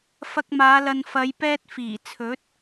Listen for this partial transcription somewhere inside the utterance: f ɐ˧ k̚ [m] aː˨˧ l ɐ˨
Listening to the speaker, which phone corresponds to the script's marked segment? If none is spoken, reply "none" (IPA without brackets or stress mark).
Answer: m